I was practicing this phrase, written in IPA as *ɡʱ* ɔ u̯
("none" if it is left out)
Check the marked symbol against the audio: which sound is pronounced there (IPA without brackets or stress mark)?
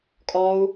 kʼ